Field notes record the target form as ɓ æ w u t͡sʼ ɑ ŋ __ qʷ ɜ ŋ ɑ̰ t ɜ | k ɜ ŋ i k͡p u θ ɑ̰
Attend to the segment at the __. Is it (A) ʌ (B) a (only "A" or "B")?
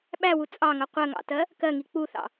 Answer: A